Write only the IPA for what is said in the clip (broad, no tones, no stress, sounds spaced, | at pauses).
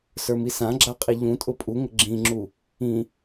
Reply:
s ə˞ m i s ã ɡ͡ǁ a qʼ i ʎ ũ tʼ ʊ pʼ u ŋ ə ɡ͡ǁ ĩ ŋ͡ǁ u | ĩ